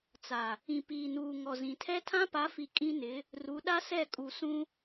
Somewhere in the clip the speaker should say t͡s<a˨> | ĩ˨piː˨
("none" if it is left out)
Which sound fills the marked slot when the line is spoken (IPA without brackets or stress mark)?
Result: a˨